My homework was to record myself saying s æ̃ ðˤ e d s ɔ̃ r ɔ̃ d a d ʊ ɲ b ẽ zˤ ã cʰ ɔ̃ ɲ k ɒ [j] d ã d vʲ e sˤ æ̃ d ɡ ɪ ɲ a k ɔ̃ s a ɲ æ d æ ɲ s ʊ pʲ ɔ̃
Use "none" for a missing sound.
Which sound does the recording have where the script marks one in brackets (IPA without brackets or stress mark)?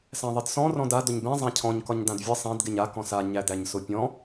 ɲ